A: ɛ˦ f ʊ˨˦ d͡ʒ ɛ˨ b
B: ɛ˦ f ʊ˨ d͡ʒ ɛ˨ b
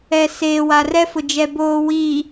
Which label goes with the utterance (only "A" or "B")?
B